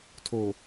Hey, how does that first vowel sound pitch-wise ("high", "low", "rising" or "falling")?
low